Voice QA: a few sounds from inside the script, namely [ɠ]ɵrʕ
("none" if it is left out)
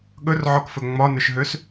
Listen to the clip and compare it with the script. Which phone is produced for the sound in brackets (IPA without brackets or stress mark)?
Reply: ɠ